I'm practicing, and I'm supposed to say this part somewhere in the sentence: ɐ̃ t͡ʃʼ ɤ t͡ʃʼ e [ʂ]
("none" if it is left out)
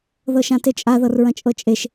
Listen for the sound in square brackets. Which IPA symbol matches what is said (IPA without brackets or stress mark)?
ʃ